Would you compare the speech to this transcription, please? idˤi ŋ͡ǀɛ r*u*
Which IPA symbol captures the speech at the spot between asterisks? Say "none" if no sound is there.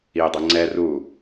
u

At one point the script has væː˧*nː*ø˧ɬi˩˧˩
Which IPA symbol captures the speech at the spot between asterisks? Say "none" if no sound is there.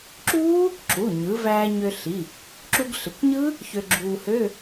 ɲ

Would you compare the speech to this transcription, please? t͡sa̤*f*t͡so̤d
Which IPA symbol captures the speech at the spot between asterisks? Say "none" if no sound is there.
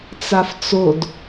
f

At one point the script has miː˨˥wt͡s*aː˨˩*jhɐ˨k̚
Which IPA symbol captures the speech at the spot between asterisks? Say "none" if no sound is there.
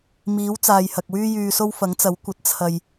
aː˨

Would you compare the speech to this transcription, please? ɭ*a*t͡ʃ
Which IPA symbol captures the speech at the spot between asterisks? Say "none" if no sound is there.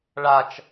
a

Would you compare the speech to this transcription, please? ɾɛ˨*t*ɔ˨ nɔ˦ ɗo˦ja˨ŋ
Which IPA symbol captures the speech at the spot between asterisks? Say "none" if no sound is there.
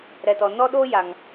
t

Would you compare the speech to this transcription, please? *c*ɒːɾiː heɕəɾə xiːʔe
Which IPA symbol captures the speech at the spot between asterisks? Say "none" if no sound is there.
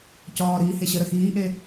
c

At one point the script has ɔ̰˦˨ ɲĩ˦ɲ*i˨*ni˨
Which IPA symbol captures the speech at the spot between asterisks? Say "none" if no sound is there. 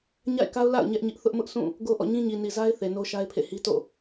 i˨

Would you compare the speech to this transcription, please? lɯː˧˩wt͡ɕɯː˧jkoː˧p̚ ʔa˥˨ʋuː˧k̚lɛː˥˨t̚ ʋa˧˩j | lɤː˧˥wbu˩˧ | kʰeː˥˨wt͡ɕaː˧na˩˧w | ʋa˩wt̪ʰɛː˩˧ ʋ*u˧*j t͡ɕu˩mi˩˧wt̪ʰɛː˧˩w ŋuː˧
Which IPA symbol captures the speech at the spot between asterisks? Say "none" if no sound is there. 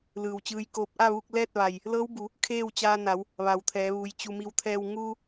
u˩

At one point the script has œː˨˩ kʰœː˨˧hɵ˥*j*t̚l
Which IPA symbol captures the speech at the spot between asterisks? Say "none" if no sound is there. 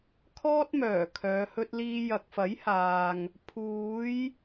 none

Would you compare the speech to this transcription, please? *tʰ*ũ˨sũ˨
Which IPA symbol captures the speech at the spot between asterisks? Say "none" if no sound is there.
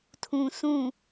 tʰ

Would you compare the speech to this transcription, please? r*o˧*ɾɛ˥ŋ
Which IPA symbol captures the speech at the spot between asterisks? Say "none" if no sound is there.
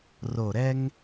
o˧˩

